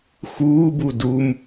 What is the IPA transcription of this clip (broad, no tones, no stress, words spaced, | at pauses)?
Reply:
xuːbu dum